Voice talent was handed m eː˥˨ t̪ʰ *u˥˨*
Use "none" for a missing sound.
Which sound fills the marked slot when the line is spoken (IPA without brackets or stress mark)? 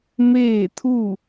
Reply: u˥˨